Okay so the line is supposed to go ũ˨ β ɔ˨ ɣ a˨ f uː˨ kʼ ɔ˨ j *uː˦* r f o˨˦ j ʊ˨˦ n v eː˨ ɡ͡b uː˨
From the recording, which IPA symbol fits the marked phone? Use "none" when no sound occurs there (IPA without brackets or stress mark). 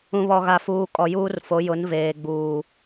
uː˦